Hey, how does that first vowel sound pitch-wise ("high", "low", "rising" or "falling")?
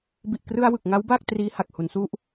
low